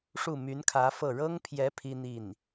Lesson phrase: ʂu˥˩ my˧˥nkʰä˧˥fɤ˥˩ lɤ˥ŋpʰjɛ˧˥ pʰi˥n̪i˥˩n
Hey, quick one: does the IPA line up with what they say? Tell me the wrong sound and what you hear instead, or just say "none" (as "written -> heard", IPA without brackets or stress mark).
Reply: l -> ɻ